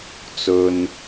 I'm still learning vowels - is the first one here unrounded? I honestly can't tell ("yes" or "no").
no